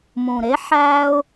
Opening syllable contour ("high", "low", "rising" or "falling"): low